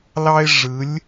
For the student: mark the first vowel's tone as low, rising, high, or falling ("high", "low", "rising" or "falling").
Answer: high